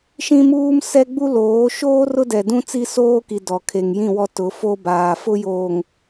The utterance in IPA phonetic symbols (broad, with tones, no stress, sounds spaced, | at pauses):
ʃ ĩ˦ m uː˦ m s ɛ˦ ɡ͡b u˦ l oː˨˦ ʃ oː˦ r ʊ˦ d ɛ˨ d ũ˦ t͡s i˦ s oː˦ k i˨ d ɔ˨ kʰ e˨ ŋ j ĩ˦˨ w ɔ˦ t ʊ˨˦ f o˦ b aː˨ f ʊ˦ j oː˨ ŋ